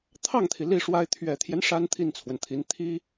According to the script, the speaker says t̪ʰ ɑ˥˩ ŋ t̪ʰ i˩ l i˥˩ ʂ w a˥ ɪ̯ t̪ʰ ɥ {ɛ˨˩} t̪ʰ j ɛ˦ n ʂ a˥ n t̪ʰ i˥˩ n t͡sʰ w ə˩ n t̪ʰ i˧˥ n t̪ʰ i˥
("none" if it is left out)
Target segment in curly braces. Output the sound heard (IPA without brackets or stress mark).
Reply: ɛ˨˩